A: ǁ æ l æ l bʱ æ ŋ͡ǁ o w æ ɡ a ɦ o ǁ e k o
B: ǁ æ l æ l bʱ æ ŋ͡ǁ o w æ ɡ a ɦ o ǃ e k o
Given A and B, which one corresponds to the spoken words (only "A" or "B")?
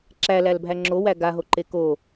B